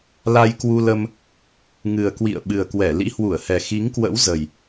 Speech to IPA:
l a˧ j k w u˧ l ə˧ m | ŋ ɨ˨˩ ə̯ k w ḭ˧˨ ə̯ ɓ ɨ˨˩ ə̯ k w ɛ˧˩ l ḭ˧˥ h w u˧˩ ə̯ h ɛ˨˩ x i˨˦ ŋ k w ə̰˧˥ w z ə˨˩ j

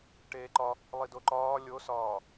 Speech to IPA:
ʈ eː ǃ ɒ | lˠ i d o ǃ ɒː lʲ o s ɒː

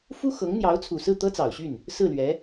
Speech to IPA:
f u˥ x ɤ˧˥ ŋ n̪ j ɑ˧˥ ʊ̯ t͡sʰ u˨˩ s ɹ̩˥˩ t̪ ɤ˥ t͡s ɑ˨˩ ʊ̯ ɕ y˥˩ n | s ɹ̩˥˩ l ɥ ɛ˧˥

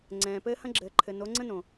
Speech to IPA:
ŋ͡ǀ ɛ̃ː˨ p ɘː˦ h ɐ̃˦ ɡ͡ǁ ɘː˨ ǃʰ ɘ˨ n o˨˦ ŋ͡ǀ ə̃˦ n õ˨

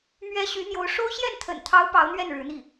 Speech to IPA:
m ɥ ɛ˥ ɕ y˧˥ n̪ j o˧˥ ʊ̯ ʂ o˥ ʊ̯ ɕ j ɛ˥˩ n t̪ʰ ə̰˨˩ n t̪ʰ ɑ˧˥ ʊ̯ p ɑ˧˥ ʊ̯ n̪ ɥ ɛ˥˩ n ɻ ɻ̩˧˥ n̪ i˥˩

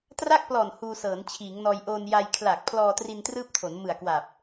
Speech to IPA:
t r a˥˩ k̚ p l ɔː˨˩ n h uː˧ s ɤː˩˦ n t͡ɕʰ iː˩˦ ŋ n ɔː˧ j ʔ oː˧ n j a˧ j kʰ l aː˨˩ k̚ pʰ l ɔː˧ t r i˧ n t r ɯː˥˩ p̚ tʰ o˩˦ n m ɯ˨˩ a̯ k w a˨˩ p̚

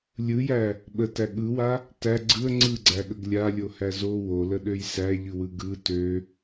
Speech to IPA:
lʲ ɯ j æ | ɓ ə t æ ɠ ɯ w a | t æ ɡ͡ǀ ɯ ə̯ ŋ͡ǀ ɯ ɡ͡ǀ æ ɠ ə ɡ lʲ a lʲ o h æ z o w o l ə ɗ ø j s æ ʎ ɯ w ɯ ɡ ɯ t ø

